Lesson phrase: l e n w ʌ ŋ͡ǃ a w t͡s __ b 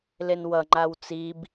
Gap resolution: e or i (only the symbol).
i